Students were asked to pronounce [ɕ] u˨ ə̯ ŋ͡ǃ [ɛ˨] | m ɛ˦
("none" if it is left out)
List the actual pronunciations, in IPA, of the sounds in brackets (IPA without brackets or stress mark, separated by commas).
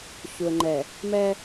ɕ, ɛ˨